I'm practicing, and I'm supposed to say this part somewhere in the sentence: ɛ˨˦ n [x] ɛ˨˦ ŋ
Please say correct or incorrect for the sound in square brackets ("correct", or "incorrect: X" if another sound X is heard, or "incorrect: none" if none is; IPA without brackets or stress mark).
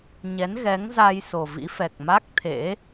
incorrect: ɣ